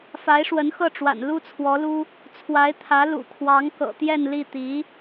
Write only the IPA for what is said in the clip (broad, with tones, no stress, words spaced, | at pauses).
fa˧˥ɪ̯ʂwə˧˥nxɤ˥˩ʈ͡ʂwa̰˨˩n lu˥t͡sʰwɔ˧˥lu˥ | t͡sʰwa˧˥ɪ̯t̪ʰä˧˥ lṵ˨˩kʰwɑ˧˥ŋ kɤ̰˨˩t̪jɛ˥˧n li˥˩ t̪i˧˥